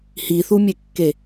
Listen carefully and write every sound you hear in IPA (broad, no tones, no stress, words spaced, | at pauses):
hiθumʲekːe